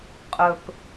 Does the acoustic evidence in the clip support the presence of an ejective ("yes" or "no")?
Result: yes